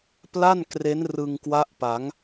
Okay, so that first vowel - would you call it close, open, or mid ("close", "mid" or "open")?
open